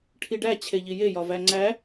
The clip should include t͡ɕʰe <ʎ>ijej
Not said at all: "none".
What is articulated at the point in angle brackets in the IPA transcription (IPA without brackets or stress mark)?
ʎ